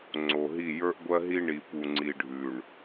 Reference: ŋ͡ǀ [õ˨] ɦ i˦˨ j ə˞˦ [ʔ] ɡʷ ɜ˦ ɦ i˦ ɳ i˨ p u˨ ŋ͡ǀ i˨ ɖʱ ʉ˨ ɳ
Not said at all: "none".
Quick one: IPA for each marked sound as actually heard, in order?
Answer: o˨, ʔ

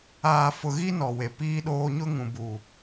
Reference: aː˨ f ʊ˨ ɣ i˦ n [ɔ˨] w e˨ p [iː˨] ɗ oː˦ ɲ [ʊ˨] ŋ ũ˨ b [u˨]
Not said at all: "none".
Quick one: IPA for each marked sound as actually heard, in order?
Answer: ɔ˨, iː˦, ʊ˦, u˨

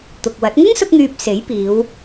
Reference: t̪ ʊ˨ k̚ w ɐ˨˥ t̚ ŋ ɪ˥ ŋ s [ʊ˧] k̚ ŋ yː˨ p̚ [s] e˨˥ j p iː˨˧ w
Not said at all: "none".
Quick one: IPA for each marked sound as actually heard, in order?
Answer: ʊ˧, s

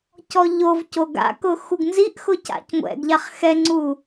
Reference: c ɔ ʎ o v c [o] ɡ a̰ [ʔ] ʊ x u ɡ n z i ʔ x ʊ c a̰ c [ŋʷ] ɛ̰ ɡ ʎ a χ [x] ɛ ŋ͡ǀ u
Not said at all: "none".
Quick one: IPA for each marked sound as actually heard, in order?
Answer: o, k, ŋʷ, x

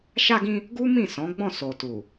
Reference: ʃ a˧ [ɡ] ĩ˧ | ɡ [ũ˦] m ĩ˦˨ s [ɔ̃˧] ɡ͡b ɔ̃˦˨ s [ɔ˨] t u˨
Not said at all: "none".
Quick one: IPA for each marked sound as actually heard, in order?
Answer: ɡ, u˦, ɔ̃˨˦, o˨

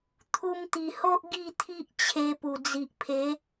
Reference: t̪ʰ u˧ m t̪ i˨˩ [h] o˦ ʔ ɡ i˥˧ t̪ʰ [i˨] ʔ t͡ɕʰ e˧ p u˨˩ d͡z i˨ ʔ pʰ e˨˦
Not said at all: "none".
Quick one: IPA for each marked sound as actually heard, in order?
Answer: h, i˦

